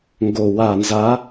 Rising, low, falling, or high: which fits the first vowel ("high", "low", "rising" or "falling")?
low